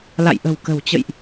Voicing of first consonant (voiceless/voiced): voiced